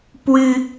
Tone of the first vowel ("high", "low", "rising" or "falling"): high